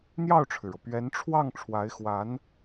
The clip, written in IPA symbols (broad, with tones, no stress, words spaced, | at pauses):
n̪jɑ˥˩ʊ̯ʈ͡ʂʰɻ̩˩ɻɤ˩ pɥɛ˧˥nʈ͡ʂʰwɑ˥˩ŋ ʈ͡ʂʰwa˧˥ɪ̯xwa˧˥n